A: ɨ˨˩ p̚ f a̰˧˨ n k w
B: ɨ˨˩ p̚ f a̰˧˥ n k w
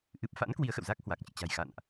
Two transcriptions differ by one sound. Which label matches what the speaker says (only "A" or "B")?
B